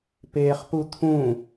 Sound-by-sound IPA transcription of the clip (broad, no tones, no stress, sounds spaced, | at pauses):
p eː χ p u t̪ʰ ũ